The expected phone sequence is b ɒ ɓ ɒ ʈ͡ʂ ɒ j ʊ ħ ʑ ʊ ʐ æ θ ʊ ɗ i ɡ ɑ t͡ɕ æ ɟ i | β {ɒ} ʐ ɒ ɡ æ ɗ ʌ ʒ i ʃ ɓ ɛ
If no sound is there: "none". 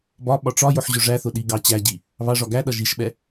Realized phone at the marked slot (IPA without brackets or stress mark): ɑ